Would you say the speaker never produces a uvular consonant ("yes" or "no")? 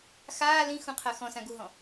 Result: no